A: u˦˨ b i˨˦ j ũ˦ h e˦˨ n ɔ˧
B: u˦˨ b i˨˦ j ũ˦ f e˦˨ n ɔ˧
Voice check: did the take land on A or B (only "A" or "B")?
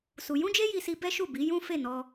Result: B